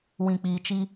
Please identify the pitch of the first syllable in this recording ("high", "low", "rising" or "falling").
low